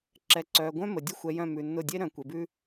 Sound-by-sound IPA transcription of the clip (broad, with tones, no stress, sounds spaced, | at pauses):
ǁ ɛ˨ ǀ œː˨ ɡʷ œ̃˦ m ə˨ dʲ ə˦ xʷ ɛ˨ j œ̃˦˨ m ʉ˨ nː ʊ˦˨ dʲ e˦ ɾ œ̃˨ kʷ e˨ b ʉ˦